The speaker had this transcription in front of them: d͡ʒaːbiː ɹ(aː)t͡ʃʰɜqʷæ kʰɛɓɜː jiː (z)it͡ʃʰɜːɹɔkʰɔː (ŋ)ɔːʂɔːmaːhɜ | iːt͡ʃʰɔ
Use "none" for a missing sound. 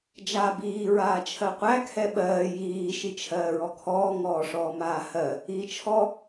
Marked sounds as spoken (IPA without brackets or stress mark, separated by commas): aː, ʃ, ŋ